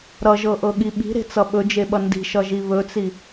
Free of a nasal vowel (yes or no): yes